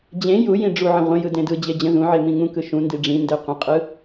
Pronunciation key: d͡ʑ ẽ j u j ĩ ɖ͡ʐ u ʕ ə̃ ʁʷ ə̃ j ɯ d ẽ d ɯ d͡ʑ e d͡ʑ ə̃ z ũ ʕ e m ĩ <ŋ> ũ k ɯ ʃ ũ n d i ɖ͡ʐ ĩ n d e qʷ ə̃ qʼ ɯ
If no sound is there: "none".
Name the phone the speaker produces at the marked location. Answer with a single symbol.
ŋ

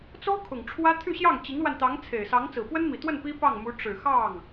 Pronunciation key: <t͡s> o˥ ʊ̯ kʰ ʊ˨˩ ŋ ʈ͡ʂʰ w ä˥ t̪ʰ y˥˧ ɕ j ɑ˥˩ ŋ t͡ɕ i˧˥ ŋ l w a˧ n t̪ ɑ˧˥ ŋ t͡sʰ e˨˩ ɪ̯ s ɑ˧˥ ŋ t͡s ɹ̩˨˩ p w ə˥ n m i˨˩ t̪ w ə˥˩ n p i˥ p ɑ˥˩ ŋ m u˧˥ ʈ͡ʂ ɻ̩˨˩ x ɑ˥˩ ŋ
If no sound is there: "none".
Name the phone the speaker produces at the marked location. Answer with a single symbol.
t͡s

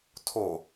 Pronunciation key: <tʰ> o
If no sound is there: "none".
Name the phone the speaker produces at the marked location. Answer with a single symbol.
tʰ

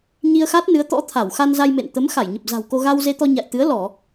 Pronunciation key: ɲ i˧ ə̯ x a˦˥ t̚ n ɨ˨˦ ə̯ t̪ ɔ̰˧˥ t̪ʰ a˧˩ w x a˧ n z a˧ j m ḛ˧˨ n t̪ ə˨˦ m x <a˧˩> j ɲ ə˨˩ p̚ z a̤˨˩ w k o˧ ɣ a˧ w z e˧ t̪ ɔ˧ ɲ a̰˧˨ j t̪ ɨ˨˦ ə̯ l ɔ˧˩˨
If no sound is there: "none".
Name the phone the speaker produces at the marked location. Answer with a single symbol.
a˧˩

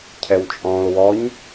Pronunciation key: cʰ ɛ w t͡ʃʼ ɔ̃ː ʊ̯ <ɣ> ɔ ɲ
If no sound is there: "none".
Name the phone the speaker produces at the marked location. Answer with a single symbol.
w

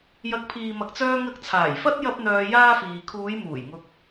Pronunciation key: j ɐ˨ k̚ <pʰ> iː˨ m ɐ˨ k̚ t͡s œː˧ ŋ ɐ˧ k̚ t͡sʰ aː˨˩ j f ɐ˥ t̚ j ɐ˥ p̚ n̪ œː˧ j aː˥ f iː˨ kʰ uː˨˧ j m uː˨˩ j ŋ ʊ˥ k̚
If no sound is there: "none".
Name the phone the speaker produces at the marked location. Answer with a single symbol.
pʰ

